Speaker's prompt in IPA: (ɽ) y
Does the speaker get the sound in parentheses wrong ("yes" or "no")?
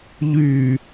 yes